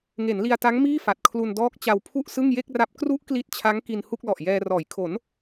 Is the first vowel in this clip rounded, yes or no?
no